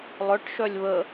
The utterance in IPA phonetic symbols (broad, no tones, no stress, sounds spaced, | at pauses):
lˠ œ ʈ ʃ œ lʲ β ə